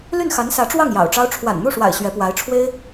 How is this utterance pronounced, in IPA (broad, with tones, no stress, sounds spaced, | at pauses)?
l y˥˩ n x a˧˥ n s ä˧˥ ʈ͡ʂ w ɑ˥˩ ŋ j ɑ̰˨˩ ʊ̯ ʈ͡ʂ ɑ˥ ʊ̯ ʈ͡ʂʰ w a̰˨˩ n n̪ u˥˩ ʂ w a̰˨˩ ɪ̯ ɕ ɥ ɛ˧˥ p w a˧˥ ɪ̯ ʈ͡ʂʰ w e˥ ɪ̯